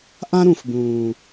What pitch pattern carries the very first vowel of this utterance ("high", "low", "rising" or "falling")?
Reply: high